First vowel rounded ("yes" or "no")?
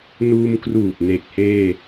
yes